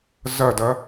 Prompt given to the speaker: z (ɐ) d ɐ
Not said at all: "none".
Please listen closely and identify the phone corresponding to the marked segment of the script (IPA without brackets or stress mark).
ɐ